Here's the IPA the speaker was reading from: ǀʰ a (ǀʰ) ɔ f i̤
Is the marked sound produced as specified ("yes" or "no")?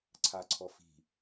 yes